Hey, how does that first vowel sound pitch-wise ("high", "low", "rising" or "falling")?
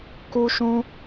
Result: high